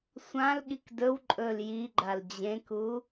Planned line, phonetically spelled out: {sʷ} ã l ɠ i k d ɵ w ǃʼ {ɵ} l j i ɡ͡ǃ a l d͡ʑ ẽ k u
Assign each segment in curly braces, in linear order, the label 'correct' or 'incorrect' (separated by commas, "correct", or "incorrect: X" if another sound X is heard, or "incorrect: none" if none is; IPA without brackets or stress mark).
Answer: correct, correct